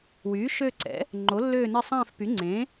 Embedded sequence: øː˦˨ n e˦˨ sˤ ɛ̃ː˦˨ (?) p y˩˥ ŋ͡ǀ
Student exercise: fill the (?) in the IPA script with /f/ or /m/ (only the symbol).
f